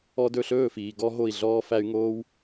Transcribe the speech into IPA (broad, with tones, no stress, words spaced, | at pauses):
ɔ˧dɵ˥˩ɬɵː˥˩fiː˩ ɡɔ˥ɦo˥˩i̯ɮɔː˥fæ˥y̯ ŋoː˥w